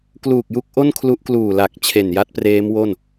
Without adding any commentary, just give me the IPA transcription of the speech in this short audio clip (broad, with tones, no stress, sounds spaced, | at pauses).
k l uː˨˩ k̚ j u˦˥ k̚ ʔ o˥˩ n kʰ l u˦˥ ʔ k l uː˨˩ l a˨˩ k̚ t͡ɕʰ e˨˩ n j a˦˥ t̚ p r eː˦˥ m w o˥˩ n